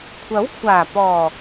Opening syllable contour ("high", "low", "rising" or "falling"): rising